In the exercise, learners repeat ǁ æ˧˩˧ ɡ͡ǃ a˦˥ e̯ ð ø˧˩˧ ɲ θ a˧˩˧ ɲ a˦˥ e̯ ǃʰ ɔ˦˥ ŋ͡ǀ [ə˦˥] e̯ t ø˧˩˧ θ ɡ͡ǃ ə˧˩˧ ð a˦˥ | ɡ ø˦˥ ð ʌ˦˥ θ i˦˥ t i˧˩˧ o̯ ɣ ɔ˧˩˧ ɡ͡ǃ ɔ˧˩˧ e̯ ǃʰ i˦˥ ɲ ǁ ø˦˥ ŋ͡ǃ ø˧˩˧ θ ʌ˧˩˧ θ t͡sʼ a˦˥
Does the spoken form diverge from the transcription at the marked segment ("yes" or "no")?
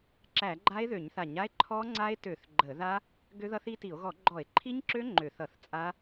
yes